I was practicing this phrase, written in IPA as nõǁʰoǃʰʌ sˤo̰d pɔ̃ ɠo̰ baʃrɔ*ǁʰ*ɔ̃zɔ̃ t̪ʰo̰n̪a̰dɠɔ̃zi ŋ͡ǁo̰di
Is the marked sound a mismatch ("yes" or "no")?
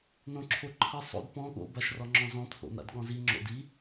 yes